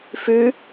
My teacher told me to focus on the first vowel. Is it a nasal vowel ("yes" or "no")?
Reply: no